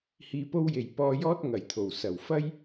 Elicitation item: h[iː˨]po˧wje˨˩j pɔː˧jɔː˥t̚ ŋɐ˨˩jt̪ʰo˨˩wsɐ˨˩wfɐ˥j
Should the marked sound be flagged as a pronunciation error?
no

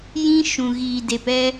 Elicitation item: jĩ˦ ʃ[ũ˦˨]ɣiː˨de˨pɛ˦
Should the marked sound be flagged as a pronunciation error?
yes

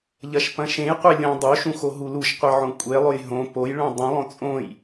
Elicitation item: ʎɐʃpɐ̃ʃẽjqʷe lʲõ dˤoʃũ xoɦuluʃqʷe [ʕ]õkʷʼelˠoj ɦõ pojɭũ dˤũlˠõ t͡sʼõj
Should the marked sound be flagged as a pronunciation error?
no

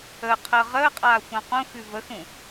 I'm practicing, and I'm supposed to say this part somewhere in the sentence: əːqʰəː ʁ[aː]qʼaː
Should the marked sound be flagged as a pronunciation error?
yes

